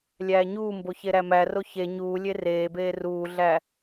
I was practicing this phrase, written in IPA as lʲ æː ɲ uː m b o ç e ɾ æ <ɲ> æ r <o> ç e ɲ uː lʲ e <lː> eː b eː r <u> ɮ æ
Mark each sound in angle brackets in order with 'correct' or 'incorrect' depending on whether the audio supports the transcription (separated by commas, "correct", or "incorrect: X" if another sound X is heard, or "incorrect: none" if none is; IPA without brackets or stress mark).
incorrect: m, correct, incorrect: r, incorrect: uː